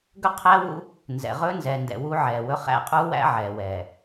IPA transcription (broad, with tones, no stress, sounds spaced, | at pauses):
ɡ ɵ˦ qʰ æ˦ w ṵ˦ | n z ɛ̰˨ ʁ ɵː˦ n z ɛː˨ n d ɛ̰˨ w uː˦ ʕ ɛː˨ w ɵ˦ χ æ̰˦˨ qʼ uː˦ w æ̰˦ ʕ ɛː˨ w ɛː˨